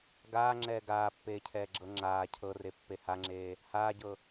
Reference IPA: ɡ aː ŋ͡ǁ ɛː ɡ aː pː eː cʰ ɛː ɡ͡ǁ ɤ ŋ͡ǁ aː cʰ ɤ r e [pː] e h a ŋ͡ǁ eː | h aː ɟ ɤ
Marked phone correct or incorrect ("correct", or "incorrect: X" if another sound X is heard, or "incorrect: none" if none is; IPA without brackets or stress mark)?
correct